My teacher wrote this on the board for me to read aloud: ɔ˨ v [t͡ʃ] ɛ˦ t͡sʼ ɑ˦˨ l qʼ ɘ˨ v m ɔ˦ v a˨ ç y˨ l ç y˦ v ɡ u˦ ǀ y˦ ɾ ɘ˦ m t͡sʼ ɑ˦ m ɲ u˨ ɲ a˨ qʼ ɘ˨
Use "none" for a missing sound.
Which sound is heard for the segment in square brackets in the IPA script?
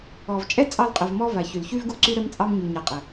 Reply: t͡ʃʼ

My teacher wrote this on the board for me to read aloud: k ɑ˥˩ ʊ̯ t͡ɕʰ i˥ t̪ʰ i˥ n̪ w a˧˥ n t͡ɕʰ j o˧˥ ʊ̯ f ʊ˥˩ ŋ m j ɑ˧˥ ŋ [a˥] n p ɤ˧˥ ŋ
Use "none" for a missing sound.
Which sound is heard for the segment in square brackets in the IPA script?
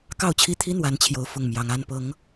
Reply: a˥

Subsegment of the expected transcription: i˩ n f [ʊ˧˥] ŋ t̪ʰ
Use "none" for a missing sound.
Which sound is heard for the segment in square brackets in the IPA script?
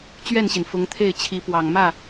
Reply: ʊ˧˥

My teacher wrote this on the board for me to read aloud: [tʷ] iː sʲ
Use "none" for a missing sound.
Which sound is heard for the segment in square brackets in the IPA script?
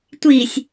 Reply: tʷ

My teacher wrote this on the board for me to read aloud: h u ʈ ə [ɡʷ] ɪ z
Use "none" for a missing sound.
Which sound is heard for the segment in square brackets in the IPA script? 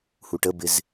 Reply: b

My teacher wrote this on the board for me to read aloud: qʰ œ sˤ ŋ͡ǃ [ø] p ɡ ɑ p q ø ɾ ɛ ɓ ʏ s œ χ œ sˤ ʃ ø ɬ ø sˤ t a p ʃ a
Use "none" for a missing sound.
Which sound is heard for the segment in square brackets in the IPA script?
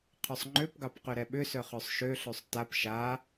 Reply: ø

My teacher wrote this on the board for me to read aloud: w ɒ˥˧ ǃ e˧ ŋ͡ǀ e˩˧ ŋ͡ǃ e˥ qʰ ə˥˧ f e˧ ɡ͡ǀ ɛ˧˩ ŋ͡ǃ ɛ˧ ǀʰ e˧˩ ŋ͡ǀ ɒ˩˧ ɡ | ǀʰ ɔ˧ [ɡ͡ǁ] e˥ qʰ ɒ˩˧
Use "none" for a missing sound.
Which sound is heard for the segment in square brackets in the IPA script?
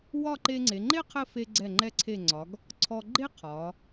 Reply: ɡ͡ǃ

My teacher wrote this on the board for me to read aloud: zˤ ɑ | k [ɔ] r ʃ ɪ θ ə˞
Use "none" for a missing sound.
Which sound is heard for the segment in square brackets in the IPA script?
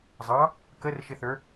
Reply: ə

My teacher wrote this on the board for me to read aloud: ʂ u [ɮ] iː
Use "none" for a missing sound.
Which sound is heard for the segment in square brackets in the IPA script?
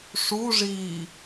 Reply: ʐ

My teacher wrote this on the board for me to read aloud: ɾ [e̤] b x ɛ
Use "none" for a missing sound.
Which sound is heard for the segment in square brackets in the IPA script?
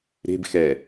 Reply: e̤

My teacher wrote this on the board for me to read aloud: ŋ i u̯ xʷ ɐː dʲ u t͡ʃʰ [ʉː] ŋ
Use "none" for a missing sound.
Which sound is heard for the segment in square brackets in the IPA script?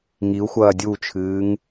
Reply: ɨː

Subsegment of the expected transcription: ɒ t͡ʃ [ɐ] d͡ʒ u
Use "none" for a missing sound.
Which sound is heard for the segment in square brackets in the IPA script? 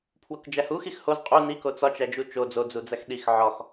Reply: æ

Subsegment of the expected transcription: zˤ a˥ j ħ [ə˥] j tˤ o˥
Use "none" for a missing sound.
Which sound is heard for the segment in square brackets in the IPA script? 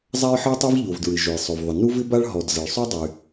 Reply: ə˥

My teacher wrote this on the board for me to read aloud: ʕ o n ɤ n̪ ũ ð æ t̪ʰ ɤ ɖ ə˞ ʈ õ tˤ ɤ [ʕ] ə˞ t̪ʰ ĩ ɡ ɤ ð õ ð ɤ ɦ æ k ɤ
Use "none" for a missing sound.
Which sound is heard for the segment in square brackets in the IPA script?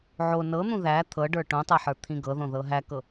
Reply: ħ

